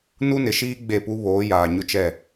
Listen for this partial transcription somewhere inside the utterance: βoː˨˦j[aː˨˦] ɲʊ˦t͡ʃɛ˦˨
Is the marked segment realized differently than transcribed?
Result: yes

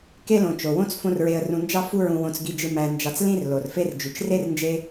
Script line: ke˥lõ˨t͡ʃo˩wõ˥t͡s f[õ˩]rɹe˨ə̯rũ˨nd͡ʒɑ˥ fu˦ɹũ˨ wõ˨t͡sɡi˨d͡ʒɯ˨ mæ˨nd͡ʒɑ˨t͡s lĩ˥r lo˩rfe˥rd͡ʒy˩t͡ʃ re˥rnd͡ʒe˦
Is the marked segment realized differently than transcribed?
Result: yes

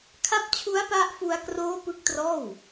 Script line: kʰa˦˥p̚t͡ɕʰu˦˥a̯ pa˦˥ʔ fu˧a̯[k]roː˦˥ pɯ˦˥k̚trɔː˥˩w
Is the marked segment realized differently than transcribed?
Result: no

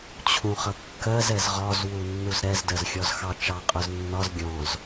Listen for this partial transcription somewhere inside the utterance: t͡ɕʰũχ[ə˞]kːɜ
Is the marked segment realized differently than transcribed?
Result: yes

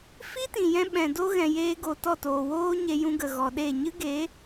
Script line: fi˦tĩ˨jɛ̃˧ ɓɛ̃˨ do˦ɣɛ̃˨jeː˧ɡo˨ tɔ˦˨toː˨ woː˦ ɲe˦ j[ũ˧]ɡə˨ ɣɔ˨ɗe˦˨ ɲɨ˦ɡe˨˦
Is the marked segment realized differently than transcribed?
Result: no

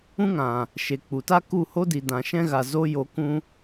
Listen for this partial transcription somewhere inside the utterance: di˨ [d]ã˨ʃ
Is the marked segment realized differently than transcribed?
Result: no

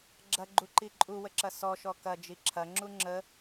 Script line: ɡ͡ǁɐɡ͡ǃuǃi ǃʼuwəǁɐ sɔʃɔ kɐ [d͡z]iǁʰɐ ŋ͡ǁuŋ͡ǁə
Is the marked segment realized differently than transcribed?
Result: yes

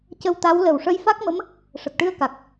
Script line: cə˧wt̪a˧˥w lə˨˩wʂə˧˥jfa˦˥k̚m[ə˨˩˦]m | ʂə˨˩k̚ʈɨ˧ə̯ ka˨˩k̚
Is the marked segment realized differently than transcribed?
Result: yes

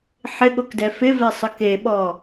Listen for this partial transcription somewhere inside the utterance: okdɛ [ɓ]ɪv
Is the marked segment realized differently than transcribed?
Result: yes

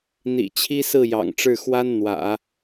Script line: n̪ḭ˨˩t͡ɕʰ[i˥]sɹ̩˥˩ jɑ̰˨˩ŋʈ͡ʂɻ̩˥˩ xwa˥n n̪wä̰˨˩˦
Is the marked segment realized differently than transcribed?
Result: no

